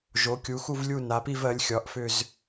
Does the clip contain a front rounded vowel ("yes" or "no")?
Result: yes